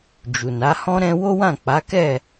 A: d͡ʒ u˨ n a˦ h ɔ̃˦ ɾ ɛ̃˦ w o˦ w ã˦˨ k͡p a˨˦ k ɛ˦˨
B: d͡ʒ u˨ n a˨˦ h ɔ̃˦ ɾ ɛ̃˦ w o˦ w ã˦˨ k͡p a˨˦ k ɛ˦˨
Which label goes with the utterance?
B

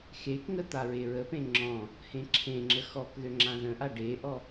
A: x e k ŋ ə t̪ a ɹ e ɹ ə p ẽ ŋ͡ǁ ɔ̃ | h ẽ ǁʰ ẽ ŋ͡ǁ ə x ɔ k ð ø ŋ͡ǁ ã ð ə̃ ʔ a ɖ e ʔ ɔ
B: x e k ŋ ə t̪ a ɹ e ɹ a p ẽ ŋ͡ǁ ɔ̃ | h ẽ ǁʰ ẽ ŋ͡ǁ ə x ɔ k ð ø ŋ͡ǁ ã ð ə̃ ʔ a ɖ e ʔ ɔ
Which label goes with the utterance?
A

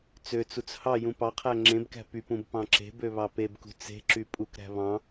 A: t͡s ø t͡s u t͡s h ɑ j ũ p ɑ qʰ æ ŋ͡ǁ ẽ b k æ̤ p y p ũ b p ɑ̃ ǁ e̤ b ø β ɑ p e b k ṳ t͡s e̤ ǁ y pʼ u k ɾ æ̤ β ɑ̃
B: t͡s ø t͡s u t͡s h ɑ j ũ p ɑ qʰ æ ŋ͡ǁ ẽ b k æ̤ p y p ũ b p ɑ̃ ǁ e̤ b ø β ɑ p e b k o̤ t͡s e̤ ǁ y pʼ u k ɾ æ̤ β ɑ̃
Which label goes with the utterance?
A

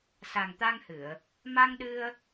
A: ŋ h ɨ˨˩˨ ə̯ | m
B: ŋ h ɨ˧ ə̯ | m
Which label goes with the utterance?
A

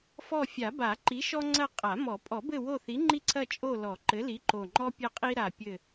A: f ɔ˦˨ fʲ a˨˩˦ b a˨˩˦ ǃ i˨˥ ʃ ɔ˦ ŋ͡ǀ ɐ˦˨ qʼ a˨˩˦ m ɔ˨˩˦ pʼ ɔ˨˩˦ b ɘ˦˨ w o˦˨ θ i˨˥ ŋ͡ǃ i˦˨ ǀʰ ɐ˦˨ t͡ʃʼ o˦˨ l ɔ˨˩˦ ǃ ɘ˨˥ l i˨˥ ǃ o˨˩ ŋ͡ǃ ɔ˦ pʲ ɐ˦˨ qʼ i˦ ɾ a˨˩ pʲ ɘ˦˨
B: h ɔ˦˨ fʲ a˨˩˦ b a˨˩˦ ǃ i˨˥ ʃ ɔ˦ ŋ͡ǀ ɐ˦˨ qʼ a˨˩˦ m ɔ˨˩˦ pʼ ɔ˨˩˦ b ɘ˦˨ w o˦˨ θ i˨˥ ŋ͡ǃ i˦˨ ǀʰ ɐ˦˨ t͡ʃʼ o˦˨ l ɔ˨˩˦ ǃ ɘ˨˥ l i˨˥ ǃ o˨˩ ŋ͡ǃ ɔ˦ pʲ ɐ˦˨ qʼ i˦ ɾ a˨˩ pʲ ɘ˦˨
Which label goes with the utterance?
A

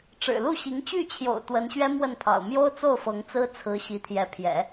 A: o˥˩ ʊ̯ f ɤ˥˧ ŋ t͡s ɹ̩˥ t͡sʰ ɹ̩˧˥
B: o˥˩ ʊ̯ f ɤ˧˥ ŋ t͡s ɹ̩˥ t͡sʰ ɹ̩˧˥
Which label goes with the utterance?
B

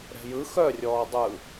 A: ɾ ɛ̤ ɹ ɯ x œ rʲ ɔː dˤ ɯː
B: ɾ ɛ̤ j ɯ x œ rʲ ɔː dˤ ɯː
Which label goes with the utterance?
B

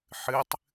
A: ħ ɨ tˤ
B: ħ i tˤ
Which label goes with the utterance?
A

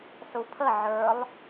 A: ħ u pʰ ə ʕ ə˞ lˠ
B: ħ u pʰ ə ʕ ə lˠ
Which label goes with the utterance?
A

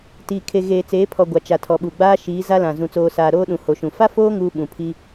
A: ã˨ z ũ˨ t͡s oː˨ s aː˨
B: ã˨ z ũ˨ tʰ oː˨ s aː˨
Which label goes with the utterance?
A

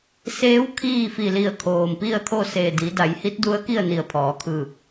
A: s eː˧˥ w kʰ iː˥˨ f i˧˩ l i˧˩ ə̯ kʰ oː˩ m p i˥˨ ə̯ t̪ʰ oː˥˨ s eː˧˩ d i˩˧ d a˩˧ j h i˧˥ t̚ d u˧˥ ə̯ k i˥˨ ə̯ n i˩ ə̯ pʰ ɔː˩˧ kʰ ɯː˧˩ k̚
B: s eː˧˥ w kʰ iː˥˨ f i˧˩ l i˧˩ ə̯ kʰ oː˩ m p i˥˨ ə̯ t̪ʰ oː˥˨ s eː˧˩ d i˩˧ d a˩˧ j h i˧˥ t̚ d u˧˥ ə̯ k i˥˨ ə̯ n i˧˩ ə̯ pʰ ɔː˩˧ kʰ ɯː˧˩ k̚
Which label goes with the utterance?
B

